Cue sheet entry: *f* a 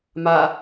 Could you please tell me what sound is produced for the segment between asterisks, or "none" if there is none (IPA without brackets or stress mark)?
m